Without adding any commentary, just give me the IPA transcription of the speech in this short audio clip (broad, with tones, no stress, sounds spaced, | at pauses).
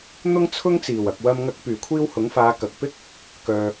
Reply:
n̪ ʊ˥ ŋ t͡sʰ ʊ˥ ŋ t͡s iː˨˩ w ɐ˨ k̚ w ɐ˧ m ŋ ɐ˧ k̚ p yː˨˩ kʷʰ iː˧ w h ʊ˨˥ ŋ f aː˨˧ k ɐ˨ k̚ p ɪ˥ k̚ | k œː˨